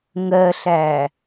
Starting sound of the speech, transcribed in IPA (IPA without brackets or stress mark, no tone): ŋ